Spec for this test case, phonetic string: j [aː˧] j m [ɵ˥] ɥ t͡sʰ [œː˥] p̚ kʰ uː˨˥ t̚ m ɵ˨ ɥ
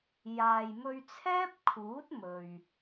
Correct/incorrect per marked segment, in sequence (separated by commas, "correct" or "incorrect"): incorrect, incorrect, incorrect